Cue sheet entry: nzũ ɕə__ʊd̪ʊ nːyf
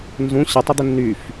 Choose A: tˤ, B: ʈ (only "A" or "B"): A